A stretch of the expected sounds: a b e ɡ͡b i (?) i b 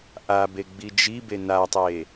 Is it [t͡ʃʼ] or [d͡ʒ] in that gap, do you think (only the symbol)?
d͡ʒ